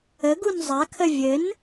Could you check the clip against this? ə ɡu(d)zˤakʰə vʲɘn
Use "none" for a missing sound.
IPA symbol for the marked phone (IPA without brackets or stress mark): n